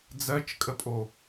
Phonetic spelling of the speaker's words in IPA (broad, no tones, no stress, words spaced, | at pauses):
d͡zɜt͡ʃkʼəpʼo